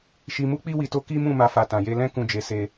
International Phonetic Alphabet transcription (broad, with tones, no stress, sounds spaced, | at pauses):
ʃ i˧ m u˦ k͡p i˦ w i˧ t o˦ k i˦ m ũ˦˨ m a˧ f a˨ t ã˨ j e˧ l ɛ̃˦ k ũ˦˨ d͡ʒ e˨˦ s e˦